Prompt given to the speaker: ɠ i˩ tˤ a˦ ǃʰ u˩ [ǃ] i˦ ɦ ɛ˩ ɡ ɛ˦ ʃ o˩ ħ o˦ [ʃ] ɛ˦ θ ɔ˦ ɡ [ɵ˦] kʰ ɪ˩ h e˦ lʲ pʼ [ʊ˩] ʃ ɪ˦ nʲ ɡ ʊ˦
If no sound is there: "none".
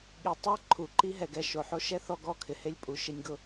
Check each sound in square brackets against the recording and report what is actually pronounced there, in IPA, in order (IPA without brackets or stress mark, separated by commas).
ǃ, ʃ, ɔ˦, u˩